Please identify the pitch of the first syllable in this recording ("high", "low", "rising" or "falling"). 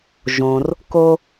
low